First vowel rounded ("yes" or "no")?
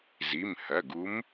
no